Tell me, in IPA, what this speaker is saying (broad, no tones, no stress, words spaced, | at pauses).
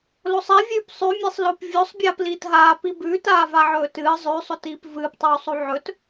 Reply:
losˤevʲʉːp sˤʉmʲesˤ lop vʲosˤ bʲaːpliːtɦaː pibʉːt aːvaʕɵːtɨː zˤʉːsˤotiːp vɨːptˤuːsˤu ʕɵt